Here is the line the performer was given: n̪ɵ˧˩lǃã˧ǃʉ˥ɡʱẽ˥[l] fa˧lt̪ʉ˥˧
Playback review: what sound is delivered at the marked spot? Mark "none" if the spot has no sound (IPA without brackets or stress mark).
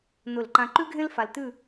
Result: l